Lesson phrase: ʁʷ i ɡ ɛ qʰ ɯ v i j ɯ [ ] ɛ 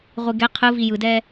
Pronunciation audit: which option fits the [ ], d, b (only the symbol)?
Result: d